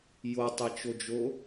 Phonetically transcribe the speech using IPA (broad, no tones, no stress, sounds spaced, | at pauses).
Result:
j o tˤ e t͡ʃ o d͡ʒ o